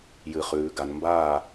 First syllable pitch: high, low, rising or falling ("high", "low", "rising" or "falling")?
low